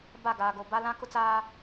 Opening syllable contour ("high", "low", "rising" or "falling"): falling